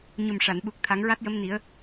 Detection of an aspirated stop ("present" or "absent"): present